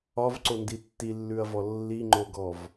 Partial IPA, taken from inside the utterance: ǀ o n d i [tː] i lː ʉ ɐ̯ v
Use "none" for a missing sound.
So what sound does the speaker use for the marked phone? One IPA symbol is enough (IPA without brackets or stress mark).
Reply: tː